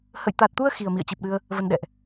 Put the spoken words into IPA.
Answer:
h ə̰˧˨ j t̪ a˨˩ t̚ t̪ u˧ ə̯ x i˨˩ ə̯ m ḭ˧˨ ə̯ t͡ɕ i˨˩ p̚ ɗ ɨ˧ ə̯ | v ə˧ n ɗ ɛ̰˧˨ ʔ

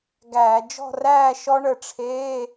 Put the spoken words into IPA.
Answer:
ɡ æː˧˩˧ d͡ʒ ɔ̤˥˨ r æː˥˨ ʃ ɔ˦˥ ɳ ə˧˩ ʈ͡ʂʰ eː˧˥˧

